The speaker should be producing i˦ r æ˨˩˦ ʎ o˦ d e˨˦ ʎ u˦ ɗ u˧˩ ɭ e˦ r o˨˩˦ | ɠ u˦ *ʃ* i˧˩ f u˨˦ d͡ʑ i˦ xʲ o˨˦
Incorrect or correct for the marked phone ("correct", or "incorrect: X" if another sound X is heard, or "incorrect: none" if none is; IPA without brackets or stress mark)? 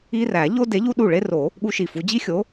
correct